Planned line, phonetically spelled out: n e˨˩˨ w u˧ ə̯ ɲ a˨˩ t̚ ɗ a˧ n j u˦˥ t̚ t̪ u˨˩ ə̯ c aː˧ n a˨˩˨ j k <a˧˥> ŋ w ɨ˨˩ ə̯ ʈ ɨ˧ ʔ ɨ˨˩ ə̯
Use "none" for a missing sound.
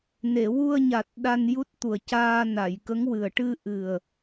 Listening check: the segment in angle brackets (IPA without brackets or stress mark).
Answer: ə˧˥